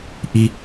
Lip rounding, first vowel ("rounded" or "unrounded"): unrounded